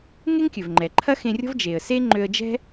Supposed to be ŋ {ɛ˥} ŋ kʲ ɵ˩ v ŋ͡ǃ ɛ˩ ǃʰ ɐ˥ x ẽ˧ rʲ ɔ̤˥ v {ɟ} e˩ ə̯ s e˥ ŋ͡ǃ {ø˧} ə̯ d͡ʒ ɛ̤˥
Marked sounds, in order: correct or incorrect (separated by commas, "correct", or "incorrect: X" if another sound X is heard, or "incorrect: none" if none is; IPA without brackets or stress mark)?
incorrect: e˥, incorrect: d͡ʒ, correct